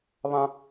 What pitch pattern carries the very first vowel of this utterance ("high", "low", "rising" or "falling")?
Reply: high